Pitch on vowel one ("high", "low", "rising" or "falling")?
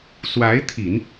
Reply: rising